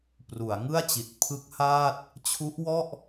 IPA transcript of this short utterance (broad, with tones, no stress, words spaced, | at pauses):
pru˩˦a̯ ŋɯ˥˩a̯t͡ɕi˨˩t̚ pʰɯ˦˥k̚haː˥˩t̚ | t͡ɕʰu˦˥ʔwɔ˥˩ʔ